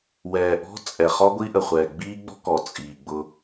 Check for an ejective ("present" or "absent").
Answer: present